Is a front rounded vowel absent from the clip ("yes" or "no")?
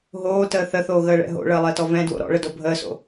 yes